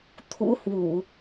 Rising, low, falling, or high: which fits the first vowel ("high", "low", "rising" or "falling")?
rising